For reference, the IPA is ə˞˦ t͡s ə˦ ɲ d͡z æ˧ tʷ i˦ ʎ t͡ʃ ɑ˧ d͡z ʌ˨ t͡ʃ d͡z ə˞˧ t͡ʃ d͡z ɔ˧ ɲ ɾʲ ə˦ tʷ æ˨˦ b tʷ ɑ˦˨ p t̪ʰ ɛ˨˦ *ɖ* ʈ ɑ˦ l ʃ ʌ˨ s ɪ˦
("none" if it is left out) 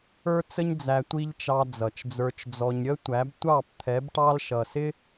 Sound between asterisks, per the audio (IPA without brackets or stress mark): b